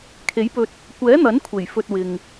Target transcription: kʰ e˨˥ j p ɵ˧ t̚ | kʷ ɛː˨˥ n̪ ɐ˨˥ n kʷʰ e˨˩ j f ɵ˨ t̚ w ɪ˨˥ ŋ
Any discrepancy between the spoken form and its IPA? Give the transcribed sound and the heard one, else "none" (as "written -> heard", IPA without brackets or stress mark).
ɪ˨˥ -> ɪ˨